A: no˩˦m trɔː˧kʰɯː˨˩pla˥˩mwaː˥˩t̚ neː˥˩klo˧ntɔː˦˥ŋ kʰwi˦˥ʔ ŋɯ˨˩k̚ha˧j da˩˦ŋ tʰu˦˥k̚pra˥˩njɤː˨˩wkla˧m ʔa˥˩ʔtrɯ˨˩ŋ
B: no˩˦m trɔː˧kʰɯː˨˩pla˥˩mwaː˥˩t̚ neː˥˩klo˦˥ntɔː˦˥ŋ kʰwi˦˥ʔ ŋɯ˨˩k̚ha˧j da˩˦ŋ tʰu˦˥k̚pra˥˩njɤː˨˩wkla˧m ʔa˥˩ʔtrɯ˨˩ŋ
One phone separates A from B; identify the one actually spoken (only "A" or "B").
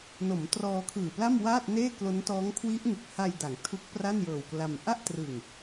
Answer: B